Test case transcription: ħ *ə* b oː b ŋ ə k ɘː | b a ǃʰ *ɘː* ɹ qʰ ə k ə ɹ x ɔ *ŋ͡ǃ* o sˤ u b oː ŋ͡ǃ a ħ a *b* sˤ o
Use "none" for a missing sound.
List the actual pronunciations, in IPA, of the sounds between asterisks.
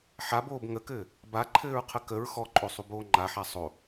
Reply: a, ɘː, ǃʼ, none

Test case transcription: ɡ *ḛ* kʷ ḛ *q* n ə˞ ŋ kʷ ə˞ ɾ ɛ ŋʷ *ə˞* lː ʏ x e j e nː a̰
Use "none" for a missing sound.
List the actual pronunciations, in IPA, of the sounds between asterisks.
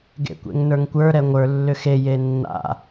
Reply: ḛ, ŋ, ə˞

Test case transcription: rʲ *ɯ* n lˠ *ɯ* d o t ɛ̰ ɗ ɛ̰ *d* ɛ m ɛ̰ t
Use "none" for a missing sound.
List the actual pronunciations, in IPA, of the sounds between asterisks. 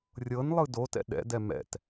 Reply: ɤ, ɯ, d

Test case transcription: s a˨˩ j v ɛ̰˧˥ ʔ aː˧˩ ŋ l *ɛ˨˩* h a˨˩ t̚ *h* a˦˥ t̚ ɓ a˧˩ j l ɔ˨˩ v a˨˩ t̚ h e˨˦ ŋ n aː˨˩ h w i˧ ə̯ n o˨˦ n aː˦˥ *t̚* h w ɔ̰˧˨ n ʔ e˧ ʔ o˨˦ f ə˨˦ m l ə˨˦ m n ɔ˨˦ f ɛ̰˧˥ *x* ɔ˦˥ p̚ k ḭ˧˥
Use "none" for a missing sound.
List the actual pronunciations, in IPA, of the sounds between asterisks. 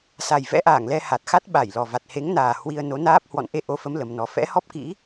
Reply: ɛ˧, x, p̚, h

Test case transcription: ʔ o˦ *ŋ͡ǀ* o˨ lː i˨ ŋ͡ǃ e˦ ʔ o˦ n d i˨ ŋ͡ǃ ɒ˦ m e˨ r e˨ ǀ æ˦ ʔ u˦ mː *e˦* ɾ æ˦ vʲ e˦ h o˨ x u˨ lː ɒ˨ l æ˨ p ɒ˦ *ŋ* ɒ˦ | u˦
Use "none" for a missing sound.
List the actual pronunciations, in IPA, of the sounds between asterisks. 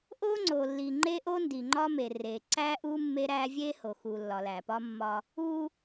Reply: ŋ͡ǀ, e˦, mː

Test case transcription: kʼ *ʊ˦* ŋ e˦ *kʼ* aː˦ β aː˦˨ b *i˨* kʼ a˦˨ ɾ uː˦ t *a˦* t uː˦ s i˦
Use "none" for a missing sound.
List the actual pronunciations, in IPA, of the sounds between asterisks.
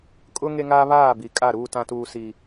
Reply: ʊ˦, ŋ, i˨, ã˦

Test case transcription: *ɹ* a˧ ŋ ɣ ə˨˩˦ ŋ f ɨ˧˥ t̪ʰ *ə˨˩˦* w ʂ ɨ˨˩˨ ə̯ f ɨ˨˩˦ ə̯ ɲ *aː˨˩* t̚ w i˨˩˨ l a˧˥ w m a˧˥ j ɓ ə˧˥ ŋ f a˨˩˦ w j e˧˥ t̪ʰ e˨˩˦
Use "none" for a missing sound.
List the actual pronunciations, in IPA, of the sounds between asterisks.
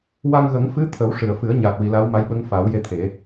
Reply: w, ə˨˩˦, aː˨˩

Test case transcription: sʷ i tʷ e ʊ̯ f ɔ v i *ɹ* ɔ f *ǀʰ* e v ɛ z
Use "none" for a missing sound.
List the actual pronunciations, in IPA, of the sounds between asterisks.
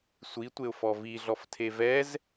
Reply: ɮ, tʰ

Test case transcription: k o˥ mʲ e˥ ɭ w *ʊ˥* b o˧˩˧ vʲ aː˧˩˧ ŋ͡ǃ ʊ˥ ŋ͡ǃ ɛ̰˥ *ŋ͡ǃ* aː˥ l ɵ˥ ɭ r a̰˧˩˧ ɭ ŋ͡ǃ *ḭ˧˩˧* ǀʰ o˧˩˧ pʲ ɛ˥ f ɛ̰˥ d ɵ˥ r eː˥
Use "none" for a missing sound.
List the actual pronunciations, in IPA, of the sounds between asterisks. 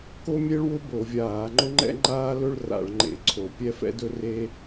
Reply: ʊ˥, ŋ͡ǃ, ḛ˧˩˧

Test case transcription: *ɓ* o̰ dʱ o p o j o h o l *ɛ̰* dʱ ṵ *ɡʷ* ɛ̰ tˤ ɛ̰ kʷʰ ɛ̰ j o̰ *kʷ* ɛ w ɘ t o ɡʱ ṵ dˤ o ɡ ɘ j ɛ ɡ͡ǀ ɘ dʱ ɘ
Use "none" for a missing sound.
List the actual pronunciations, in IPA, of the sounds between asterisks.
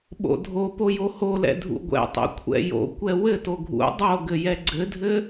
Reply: ɓ, ɛ̰, ɡʷ, kʷ

